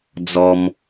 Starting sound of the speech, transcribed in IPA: d͡z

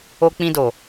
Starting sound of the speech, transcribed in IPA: o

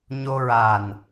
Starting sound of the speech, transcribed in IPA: ɲ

